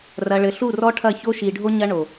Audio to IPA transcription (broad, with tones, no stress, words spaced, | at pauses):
rɐ˨ɭɘ˨ ɬu˦˨rɔ˦ʈʰɐ˦˨ço˦ ʃi˨ɖʱo˦ ɲɐ˦ɳo˨